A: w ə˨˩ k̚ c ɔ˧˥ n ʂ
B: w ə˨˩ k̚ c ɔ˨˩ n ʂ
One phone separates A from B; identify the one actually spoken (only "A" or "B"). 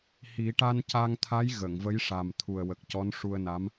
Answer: A